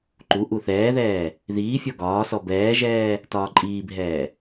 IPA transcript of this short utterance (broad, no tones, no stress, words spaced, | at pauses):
ǃu ʔuθɛːðɛː | ðiːfʲɔ ɡɒːsɔ bɛːʒɛː | tɒːǃʼiːbʱɛː